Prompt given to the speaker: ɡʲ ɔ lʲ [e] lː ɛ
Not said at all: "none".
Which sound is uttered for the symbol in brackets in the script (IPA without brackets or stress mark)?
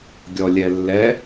ɛ